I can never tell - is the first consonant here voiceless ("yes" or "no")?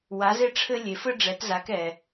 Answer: no